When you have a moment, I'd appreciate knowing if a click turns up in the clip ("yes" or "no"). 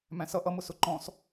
yes